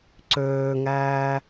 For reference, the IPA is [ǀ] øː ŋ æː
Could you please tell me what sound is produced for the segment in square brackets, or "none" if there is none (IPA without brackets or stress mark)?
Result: ǀ